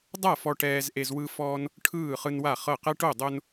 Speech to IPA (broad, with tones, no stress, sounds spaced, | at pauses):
dˤ a˥˨ f ɔ˦ ʈ ɛː˦ z ʔ e˦ z w ɯ˦ f ɔː˦ n | ʈʰ ɯː˥˨ χ ɯ˦ n w a˥˨ χ ɤ˥˨ q ɛ˦ ʈ o˥˨ dˤ o˦ n